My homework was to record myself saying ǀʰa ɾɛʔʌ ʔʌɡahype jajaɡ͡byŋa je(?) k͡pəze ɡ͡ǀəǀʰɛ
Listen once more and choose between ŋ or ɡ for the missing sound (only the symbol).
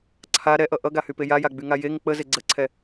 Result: ŋ